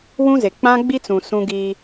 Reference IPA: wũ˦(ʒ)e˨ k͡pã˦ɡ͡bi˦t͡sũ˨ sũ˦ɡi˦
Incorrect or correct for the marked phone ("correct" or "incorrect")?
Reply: incorrect